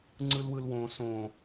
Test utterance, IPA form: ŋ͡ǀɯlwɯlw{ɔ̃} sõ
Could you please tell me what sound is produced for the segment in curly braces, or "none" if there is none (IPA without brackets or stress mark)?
õ